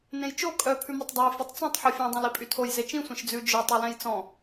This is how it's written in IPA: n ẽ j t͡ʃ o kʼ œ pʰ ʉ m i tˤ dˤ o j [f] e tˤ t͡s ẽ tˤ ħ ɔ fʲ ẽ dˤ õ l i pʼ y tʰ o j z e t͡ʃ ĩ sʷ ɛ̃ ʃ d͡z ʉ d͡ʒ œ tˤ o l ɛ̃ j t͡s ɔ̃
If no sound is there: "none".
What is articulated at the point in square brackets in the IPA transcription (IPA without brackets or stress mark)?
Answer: f